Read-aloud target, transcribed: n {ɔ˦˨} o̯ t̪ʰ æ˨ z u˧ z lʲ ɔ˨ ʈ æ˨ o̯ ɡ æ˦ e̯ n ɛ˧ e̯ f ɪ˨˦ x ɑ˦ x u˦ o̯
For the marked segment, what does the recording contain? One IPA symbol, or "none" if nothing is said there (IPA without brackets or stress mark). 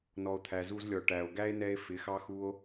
ɔ˨